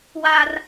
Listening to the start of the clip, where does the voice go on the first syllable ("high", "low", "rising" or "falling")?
high